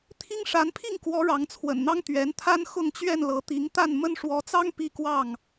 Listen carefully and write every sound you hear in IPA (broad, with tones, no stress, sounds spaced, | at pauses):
t̪ʰ i˦ ŋ ʂ a˨˦ n pʰ i˥˨ ŋ k w ɔ˨˦ ɻ ɑ˨˦ ŋ t͡sʰ w ə̰˨˩ n n̪ ɑ˦ ŋ t̪ ɥ ɛ˨˦ n t̪ʰ a˦ n x ʊ˥˨ ŋ t͡ɕ ɥ ɛ˥˨ n l ɤ˨˦ t̪ i˨˦ ŋ t̪ a˥˨ n m ə˦ n ʂ w ɔ˨˦ t͡s ɑ˦ ŋ p i˦ k w ɑ˥˨ ŋ